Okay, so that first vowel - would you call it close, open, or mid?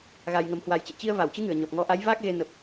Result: open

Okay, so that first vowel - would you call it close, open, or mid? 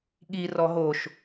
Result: close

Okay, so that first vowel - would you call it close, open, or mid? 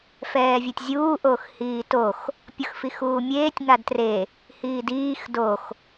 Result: mid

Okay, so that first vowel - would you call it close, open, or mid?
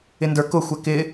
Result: close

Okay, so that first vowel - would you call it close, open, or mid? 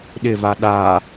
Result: close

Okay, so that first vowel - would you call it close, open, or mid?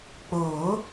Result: mid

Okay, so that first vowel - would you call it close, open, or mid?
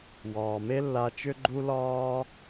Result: open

